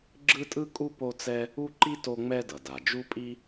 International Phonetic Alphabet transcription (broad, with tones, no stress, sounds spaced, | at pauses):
ɡ͡ǁ ɯ˥ tʼ ɯ˥ kʼ u˥ p o˥ t͡s ɛ˥ | u˥ ǃ i˥ t o˥ ŋ͡m ɛ˥ d ʌ˩ d a˩ d͡ʒ u˥ pʼ i˥